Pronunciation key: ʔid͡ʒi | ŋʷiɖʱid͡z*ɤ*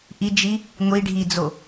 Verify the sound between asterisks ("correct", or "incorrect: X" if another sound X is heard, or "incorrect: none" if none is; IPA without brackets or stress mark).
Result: incorrect: o